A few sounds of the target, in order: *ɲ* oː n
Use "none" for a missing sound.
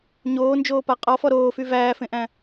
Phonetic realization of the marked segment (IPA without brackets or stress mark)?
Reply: ɲ